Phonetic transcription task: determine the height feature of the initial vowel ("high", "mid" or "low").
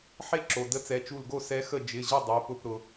mid